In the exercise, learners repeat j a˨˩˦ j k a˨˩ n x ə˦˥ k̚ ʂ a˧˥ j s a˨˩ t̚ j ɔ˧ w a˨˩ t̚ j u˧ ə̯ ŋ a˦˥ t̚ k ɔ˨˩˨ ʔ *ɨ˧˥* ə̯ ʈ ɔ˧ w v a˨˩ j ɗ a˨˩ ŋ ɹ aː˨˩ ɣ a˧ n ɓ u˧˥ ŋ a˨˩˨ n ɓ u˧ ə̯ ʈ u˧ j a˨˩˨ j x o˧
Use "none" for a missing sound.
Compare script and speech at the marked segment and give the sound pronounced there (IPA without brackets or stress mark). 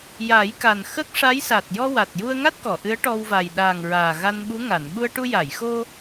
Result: ɨ˧˥